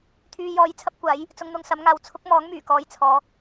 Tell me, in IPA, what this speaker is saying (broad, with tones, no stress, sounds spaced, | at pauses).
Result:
t̪ʰ yː˧ j ɔː˧ j t͡sʰ ɐ˥ p̚ kʷ aː˨˥ j | t͡s ʊ˧ ŋ n̪ ʊ˧ ŋ s ɐ˨˥ m ŋ aː˨ w t͡sʰ ʊ˥ k̚ m ɔː˨˥ ŋ m yː˨˩ k ɔː˨˧ j t͡sʰ ɔː˨˧